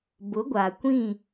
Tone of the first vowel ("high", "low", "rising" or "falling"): rising